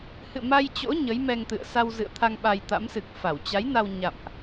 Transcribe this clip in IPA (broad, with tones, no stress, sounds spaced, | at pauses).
h ɨ̰˧˨ m a˧ j t͡ɕ o̰˧˥ ɲ ə˨˦ j m ɛ˧ ŋ t̪ ɨ̰˧˨ ə̯ s a˧ w z ɨ̰˧˨ ə̯ t̪ʰ a˧ ŋ ɓ a˧ j t̪ a̰˧˥ m s ɨ˨˩ k̚ f a˧˩ w t͡ɕ a˨˦ j n a˧ w ɲ a̰˧˨ m ʔ